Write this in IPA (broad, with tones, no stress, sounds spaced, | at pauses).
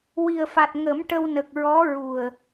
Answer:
w i˨˩ ə̯ f a˨˩ t̚ ŋ ə˨˩˦ m ʈ ə˧ w n ə˨˩ k̚ ɹ ɔ˧˥ ɹ u˨˩ ə̯